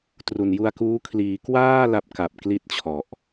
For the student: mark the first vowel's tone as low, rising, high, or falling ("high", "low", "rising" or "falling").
low